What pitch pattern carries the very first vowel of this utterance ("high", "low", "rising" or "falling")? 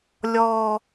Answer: low